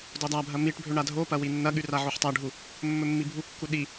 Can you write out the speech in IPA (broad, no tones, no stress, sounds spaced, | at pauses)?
d o dˤ a bʱ ɐ m i ʈ bʱ ɵ ɳ a dʱ o p ɐ w i nː ɐ ɠ ʉ r a ʕ o ħ tˤ a ɖʱ u | mː ɵ mː i bʱ u kː u ɗ i